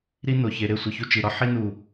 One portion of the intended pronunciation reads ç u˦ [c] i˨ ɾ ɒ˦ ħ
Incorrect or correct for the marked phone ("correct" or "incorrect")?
incorrect